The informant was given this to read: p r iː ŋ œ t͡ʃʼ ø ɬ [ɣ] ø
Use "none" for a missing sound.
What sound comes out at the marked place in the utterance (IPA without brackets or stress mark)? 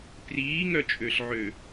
ʕ